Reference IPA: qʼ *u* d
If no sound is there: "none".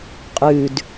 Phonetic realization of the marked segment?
ʉ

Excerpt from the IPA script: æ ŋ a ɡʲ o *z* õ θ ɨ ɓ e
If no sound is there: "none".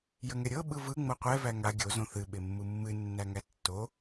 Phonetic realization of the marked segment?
z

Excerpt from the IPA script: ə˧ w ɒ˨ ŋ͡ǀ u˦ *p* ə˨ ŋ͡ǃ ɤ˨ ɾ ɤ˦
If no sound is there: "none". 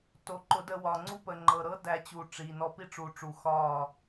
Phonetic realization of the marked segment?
p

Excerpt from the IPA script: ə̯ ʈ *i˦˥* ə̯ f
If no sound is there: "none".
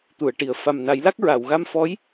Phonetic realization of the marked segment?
i˨˩˨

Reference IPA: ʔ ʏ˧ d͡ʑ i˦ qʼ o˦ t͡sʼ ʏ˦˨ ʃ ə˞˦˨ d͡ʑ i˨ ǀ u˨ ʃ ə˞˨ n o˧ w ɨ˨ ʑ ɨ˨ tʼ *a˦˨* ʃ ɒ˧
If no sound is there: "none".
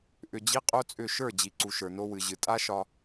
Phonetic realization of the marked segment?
a˦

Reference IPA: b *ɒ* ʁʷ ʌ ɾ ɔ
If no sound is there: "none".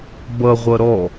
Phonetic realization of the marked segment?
ʌ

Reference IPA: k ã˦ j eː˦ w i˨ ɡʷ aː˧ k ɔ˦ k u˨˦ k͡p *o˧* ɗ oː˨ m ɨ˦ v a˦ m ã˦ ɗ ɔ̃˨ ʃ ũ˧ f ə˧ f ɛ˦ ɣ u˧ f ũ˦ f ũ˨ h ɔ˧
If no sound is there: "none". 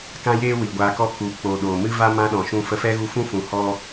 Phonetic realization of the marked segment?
o˧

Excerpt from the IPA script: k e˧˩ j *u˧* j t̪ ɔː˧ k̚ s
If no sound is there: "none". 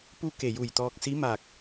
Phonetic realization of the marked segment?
u˧˩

